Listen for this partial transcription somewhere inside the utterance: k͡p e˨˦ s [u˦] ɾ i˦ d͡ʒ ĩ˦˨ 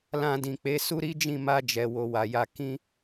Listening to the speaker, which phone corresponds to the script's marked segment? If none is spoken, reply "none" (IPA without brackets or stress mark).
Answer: u˦